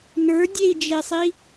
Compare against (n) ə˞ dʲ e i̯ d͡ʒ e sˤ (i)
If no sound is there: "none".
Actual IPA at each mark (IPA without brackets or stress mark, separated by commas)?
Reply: n, i